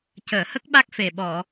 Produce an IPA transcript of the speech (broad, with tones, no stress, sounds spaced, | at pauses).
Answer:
c əː˨˩˨ h ə˦˥ k̚ ɓ a˦˥ k̚ f e˨˩ ɓ ɔ˨˩˨